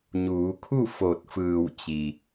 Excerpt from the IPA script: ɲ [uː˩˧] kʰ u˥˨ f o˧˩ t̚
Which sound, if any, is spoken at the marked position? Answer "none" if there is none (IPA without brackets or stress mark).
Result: uː˩˧